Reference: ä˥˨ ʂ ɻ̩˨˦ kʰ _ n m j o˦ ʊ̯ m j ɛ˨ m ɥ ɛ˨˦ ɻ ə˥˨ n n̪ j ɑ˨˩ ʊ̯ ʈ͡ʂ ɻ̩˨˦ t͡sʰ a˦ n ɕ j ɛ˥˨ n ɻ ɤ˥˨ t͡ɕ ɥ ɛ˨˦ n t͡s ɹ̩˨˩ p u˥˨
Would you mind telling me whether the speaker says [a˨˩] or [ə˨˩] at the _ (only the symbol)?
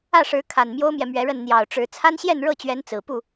a˨˩